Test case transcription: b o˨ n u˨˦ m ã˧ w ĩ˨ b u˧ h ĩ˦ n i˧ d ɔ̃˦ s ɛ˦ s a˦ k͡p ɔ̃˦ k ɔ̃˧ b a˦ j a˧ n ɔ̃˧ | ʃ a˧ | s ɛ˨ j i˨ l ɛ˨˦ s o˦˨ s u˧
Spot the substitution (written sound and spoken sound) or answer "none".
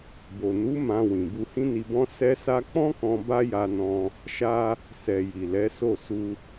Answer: d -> b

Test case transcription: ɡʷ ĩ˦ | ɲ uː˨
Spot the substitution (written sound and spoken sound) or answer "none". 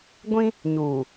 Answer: none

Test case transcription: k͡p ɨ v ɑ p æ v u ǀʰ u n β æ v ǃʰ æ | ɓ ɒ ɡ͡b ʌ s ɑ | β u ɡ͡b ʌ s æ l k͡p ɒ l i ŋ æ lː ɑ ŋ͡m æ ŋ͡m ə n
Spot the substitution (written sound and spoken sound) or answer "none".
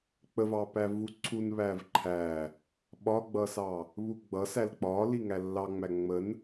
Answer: ɨ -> ə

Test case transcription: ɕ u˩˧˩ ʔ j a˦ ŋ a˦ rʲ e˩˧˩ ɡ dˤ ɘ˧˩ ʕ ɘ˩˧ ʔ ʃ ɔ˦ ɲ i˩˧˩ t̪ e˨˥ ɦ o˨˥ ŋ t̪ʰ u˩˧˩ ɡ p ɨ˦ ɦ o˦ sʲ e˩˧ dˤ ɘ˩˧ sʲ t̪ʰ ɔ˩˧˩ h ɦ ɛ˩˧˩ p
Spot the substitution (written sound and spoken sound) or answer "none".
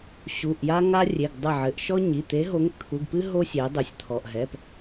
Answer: h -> ʔ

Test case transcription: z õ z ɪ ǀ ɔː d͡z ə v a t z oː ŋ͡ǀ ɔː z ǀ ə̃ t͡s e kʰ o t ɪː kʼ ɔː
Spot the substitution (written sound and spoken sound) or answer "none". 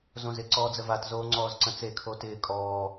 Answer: none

